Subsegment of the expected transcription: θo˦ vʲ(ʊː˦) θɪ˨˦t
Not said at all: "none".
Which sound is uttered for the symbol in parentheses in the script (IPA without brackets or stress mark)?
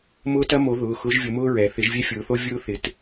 ʊː˦